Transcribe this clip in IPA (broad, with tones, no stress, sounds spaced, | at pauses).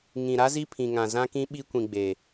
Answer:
ŋ ĩ˨ ɾ a˦ z i˦ pʰ ĩ˨ ŋ ã˨ z ã˦ k ĩ˦ ɓ i˦ kʷ ĩ˨ ɡ͡b e˨